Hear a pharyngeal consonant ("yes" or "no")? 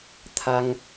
no